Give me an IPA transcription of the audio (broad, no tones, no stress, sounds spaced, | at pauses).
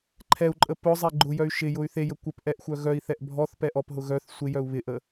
ǃʰ ɛ u̯ ǃʼ ə p ʊ zˤ e ɡ͡ǃ ʊ j œ y̯ ʃ ɪ j ʊ y̯ θ e j ə kʷ ə p ʔ ɛ ʔ xʷ œ ɣ œ i̯ θ ɛ ʔ bʱ ɔ θ p ɛ ʔ ɔ p ɦ ʊ ɣ œ θ sʷ ɪ j œ u̯ β ɪ ʔ ə